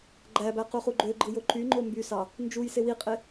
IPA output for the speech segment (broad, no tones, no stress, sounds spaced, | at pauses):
ɡ͡ǃ æ b æ q u χ u ɡ͡ǃ ø ɡ͡ǃ ɯ j o ǃ y ŋ͡ǃ o m b y s ɑ | n d͡ʒ u j s e w i qʼ e